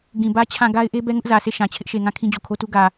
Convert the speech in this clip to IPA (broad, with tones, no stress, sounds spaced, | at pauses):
ɡ ĩ˨ b ä˦ t͡ɕʰ ã˦˨ ɡ a˦ ɪ̯ ʔ e˦ b ɛ˦ ŋ ʊ˦ ʔ z ä˨ s e˦˨ ʃ ã˨ t͡ɕʰ ɪ˦ ʔ ʃ e˨ ŋ ã˦˨ kʰ ĩ˦ d͡ʑ o˨ kʰ o˦ t u˦ ɡ ä˨